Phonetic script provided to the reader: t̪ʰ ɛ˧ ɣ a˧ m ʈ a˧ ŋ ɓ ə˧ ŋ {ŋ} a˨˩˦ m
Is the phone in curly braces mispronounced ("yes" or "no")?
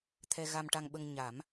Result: yes